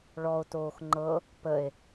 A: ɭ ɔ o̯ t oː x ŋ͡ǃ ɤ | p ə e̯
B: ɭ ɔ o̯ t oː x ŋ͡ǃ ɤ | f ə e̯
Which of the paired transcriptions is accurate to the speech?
A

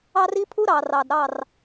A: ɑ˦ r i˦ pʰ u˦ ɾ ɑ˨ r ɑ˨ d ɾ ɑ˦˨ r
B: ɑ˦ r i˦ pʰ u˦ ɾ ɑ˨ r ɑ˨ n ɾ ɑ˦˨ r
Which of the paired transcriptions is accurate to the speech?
A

